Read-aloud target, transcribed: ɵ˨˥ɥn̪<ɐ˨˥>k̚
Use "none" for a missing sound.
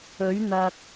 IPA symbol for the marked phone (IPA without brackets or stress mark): ɐ˨